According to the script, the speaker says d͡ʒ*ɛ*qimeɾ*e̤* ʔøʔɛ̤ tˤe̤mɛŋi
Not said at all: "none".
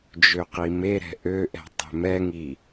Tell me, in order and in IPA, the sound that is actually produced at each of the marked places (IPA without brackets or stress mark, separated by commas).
ø, ɛ̤